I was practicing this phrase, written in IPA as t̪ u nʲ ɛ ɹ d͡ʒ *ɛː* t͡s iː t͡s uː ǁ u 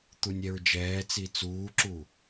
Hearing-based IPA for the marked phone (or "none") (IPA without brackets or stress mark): ɛː